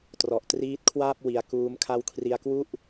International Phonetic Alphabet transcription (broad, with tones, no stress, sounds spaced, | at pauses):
t r ɔ˨˩ ʔ t r iː˦˥ t̚ kʰ w aː˥˩ p̚ w i˧ a̯ k uː˦˥ m kʰ a˦˥ w kʰ r i˧ a̯ k w u˥˩ ʔ